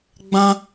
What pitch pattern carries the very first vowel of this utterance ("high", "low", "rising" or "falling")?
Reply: high